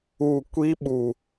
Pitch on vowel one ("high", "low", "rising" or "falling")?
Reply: falling